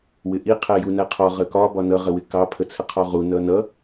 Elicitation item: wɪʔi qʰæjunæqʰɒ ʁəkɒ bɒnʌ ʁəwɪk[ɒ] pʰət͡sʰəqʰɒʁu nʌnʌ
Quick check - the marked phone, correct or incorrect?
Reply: incorrect